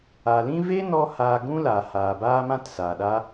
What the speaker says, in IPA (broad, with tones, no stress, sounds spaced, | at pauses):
a˨ l ĩ˦ v e˦ n ɔ˧ h aː˧ ɡ ũ˦ l a˨ h aː˨ b aː˦ m ã˦ t s aː˨ ɗ a˦